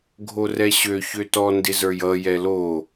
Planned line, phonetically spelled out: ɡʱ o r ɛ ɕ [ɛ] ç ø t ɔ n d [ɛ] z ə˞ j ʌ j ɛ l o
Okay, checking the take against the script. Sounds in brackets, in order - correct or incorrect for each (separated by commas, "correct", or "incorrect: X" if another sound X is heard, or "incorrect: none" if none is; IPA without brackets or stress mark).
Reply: incorrect: ø, incorrect: ɪ